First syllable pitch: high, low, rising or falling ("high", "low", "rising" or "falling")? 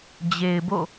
low